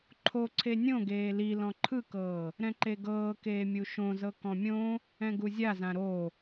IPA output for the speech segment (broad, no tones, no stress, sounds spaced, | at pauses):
ǃʰ o ǀʰ e nʲ õ ɡ eː l i l ɔ̃ ǃʰ ɯ k ɤː | ɾ ɛ̃ ǃ e ɡ ɤː k eː mʲ u ʃ õ z ɤ k ɔ̃ mʲ õ | ɛ̃ ɡ u zʲ a z ã ɾ o